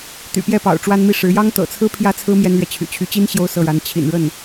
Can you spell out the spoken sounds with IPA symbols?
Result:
t̪ y̰˨˩ p j ɛ˥˩ p ɑ̰˨˩ ʊ̯ ʈ͡ʂ w a˥ n m i˥˩ ʂ ɻ̩˧˥ j ɑ˥ ŋ t̪ ɤ̰˨˩ t͡sʰ ɹ̩˥ pʰ j ä˥ t͡sʰ ɹ̩˥ m j ɛ˥ n l ɥ ɛ˨ t͡ɕʰ y̰˨˩ t͡ɕʰ y˧˥ t͡ɕ i˥ n ɕ j o˥˧ ʊ̯ s ɤ˥˩ ɻ a˧˥ n t͡ɕʰ ḭ˨˩ n ɻ ə˥˩ n

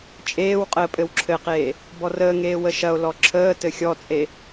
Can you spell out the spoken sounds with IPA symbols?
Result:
t͡ʃʼ eː w qʼ əː pʼ ɘ w ǁʰ ɘ q eː | b ɔ r əː ŋ eː w ə ʃ ɐ o̯ l ɔ ǁʰ əː t ɘ xʲ ɔ t͡sʼ e

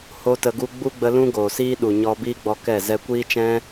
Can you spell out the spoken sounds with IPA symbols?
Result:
h o˦ t ə˧ ɡ u˦ ɡ͡b u˦ ɡ͡b ə˧ l ũ˦ ɡ oː˨ s iː˦ ɗ u˨ ɲ ɔ˦ b iː˦ ɡ͡b ɔ˧ k ɛ˦˨ z ɛ˧ kʷ iː˦ t͡ʃ ɛ̃˦

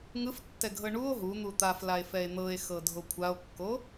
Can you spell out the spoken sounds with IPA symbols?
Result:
ŋ ɯ f tː ɛ ɡʱ ɤ ɳ u o̯ ɦ u n̪ u t̪ a f l a e̯ f ɛ e̯ n̪ ɤ e̯ x ɤ dʱ o kʷʰ a o̯ kː o

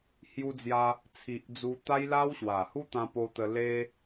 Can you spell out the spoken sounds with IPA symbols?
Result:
h j u˧ d͡z j a˧ | t͡sʰ i˨ ʔ d͡z u˧ t̪ a˦ j l a˦ w ɕ w a˨˩ h u˦ t̪ ã˧ p o˧ t̪ ə˧ l e˦

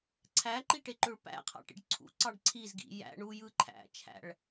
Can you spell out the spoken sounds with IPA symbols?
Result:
ǀʰ æ ǃ i ʈ e ǃ ø ɭ p æ̰ qʰ ɑ̰ ʈ ḭ ɖ ǀʰ ṵ ǀ ɑ ɖ ǀʰ i z ɡ ḭ j æ̰ ɳ u j ɯ ǃʰ æ̰ t͡ʃʰ æ̰ ɭ

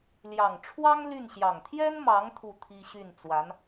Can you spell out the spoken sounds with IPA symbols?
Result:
l j ɑ˨˩ ŋ ʈ͡ʂʰ w ɑ˥ ŋ l y˥˩ n ɕ j ɑ˨˩ ŋ t̪ʰ j ɛ˥ n m ɑ˧˥ ŋ t̪ʰ u˥˩ t̪ʰ i˥ ɕ y˥˩ n t͡s w a˧˥ n

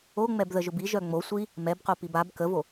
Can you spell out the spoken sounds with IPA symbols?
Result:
o ŋ͡m ɛ b ð ə ʒ ʊ b i ʒ œ ŋ͡m o sʷ i | m ɛ b q o p i b a b k ə v o

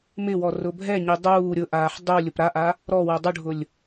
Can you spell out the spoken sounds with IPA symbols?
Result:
m ɪ w ɔ r ʊ bʱ ɛ ɲ i dˤ uː ɾʲ ʊ ʔ aː ħ dˤ u lʲ ʊ p ɾ a ʔ a | ɾ ɔ w ɛ dˤ u ɖʱ ʊ lʲ

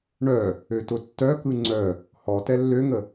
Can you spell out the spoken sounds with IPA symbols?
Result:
ɳ œ | ø t ʊ tː œ k ɯ ŋ͡ǀ œ | h ɔ t ɛ lː ø ŋ ə

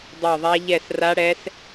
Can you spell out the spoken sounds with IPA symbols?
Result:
dˤ ɛ˦˨ ðˤ a˦˥ ʎ ɛ˦˨ s r a˦˥ ɽ ɛ˦˥ s

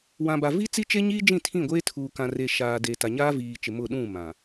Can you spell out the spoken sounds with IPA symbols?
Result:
w ã˨ b a˨ v i˦ t͡s i˦ t͡ʃ e˦ ɲ iː˦ d͡ʒ ĩ˦˨ tʰ ĩ˦˨ ɡʷ eː˦ tʰ uː˨ k ã˨ r e˨ ʃ aː˨ d e˨ t a˨ ɲ aː˦ v iː˨ t͡ʃ ɪ˨ m ʊ˦˨ ɗ ũ˦˨ m ã˨

